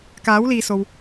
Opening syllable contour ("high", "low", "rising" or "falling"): rising